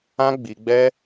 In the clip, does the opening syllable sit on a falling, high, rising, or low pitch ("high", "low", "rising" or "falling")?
high